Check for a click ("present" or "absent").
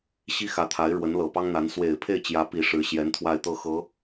absent